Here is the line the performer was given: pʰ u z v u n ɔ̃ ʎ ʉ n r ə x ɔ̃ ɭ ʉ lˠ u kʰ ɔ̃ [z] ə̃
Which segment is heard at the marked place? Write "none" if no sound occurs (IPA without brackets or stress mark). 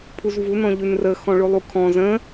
z